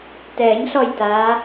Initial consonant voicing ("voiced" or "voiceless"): voiceless